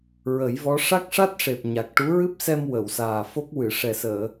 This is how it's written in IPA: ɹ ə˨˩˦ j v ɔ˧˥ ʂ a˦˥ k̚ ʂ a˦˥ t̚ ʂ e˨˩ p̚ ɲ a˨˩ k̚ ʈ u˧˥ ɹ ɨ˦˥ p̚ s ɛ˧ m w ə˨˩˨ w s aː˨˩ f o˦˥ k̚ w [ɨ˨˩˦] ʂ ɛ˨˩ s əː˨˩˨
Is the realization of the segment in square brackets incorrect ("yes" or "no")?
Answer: yes